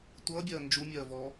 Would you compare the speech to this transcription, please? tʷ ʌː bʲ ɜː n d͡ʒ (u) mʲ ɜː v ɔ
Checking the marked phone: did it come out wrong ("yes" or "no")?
no